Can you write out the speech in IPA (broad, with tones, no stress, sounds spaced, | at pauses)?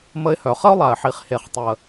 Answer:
m ə˧ ɪ̯ h œ˨ χ ə˦ ʊ̯ lˠ a˨ ɪ̯ ħ i˨ χ h e˨ χ tˤ ə˨